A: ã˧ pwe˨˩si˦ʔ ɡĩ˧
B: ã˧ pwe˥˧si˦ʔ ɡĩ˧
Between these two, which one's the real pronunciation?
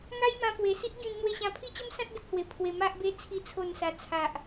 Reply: A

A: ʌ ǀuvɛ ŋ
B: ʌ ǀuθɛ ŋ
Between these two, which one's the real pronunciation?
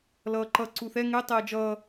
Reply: B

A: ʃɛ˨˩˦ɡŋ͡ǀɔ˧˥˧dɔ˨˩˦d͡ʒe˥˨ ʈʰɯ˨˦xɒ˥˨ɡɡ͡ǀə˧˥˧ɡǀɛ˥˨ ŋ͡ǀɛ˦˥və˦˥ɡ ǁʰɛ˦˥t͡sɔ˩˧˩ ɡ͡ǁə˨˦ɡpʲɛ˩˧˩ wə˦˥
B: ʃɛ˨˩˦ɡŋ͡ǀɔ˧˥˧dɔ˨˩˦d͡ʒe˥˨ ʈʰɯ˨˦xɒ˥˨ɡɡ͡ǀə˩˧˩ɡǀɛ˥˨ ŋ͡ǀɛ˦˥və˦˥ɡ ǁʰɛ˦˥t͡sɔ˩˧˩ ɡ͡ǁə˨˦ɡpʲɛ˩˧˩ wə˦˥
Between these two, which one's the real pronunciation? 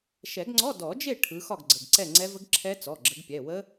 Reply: B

